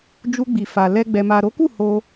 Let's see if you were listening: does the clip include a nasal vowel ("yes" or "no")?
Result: no